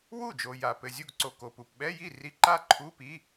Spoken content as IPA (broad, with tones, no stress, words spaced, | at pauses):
wu˥˩d͡ʒo˨ ja˨pɘ˨zʲu˥˩ɡ ǀo˨ko˨ pu˨p ɓɛ˧˥˧ji˥˩ ri˧˥˧ǃa˥˩ ǃʰu˧˥˧ pi˧˥˧